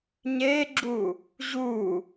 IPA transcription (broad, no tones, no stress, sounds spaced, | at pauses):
ɲ e ɡ͡ǁ u | ʑ u